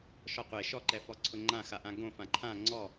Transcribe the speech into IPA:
ʃ ɔ qʷ e ʃ ɔ ǃ ɛ f ɔ ǀʰ ʊ ŋ͡ǃ ã x a ʔ ã ɡ õ f ã ǃʰ ã ŋ͡ǀ ɔ

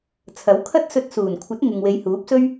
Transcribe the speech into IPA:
t͡sʰ ɐ˨˥ w kʰ ɐ˥ t̚ s ɵ˧ t̚ s uː˨˩ n kʷʰ ɐ˨˥ t̚ ŋ ɪ˨ ŋ w e˨˧ j h uː˨˥ p̚ s ɵ˥ ɥ

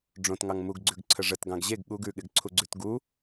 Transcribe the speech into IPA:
ɖ͡ʐ õ t ŋ ɑ ŋ m u ɡ ɡ͡ǀ ʉ ɡ ǀʰ ə ʐ ə t ɡ ɑ̃ ɡ ʑ e ɡ ɠ u ɡ ʉ ɠ ɪ ɡ ǀʰ u ɡ͡ǀ ʉ t ɡ u

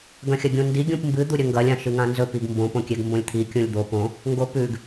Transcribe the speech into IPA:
ɡ ɐ̃ xʲ ɐ ɡʲ ũ n d i ɡʲ ũ p m b ɨ d̪ u ɾʲ ɵ ŋ ɡ ɐ lʲ ã ʃ ɨ ŋ ã n z ɵ p i ɡ m b õ p õ kʲ e ɡ m b õ lʲ t̪ʰ i kʲ ũ lʲ d̪ o p õ | ŋ ɡ o p ʉ ɡ

